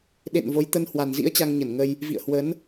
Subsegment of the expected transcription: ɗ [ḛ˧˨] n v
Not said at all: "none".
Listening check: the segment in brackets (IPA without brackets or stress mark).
ḛ˧˨